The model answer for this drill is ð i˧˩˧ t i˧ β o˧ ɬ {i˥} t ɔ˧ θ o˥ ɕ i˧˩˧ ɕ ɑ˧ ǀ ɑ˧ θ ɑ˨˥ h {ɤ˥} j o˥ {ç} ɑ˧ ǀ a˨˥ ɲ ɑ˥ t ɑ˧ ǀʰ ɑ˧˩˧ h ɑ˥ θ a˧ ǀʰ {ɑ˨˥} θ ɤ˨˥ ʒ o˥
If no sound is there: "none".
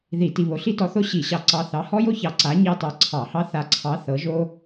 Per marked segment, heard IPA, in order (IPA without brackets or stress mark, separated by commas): i˥, ɔ˥, ç, ɑ˨˥